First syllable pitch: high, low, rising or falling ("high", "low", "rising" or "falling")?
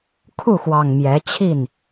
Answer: falling